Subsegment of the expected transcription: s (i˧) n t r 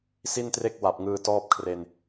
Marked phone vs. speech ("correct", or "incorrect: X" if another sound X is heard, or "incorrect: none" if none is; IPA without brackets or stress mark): incorrect: i˥˩